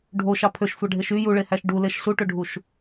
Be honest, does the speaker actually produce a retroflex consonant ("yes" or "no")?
yes